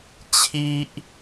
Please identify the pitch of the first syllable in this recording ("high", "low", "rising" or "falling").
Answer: high